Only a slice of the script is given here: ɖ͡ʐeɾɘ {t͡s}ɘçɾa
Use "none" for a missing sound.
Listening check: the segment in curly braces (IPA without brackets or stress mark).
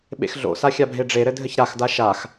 dʱ